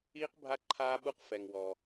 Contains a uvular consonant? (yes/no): yes